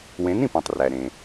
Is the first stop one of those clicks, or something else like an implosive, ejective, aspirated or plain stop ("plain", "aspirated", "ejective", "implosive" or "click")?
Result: plain